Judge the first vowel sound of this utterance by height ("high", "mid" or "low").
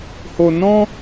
mid